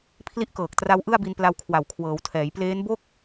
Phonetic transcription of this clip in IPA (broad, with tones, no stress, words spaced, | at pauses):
pʰli˦˥ʔkɤː˨˩k̚ tra˦˥wʔɯ˥˩a̯bi˧n pla˧wkʰwa˨˩wkʰwɤː˩˦wtʰɛː˩˦j pleː˦˥nbo˥˩k̚